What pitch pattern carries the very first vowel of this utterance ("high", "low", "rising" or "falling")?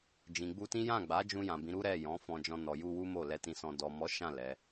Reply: low